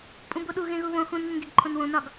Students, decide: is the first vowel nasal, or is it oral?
nasal